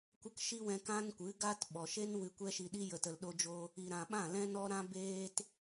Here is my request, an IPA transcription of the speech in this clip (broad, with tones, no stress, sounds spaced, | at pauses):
kʷ ə˦ k ʃ i˦ w ɛ̃˧ k ã˦ n kʷ ɨ˨˦ ɡ a˦ t ɓ ɔ˨ ʃ e˦ n w ɨ˧ kʷ ɛ˦ ʃ i˧ ɗ i˦ j ə˨ t ə˨ l ɗ o˧ d͡ʒ o˧ | i˨ ɾ ã˨ ɓ ã˦˨ l ɛ̃˦ n ɔ˦ ɾ ã˦ b eː˦ t